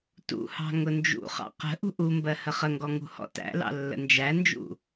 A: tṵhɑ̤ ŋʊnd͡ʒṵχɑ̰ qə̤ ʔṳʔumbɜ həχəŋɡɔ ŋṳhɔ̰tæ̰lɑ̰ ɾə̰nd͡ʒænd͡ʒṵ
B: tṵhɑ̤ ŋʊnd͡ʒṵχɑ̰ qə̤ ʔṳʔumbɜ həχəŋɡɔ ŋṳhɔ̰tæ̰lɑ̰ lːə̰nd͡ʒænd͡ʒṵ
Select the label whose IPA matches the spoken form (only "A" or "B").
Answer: B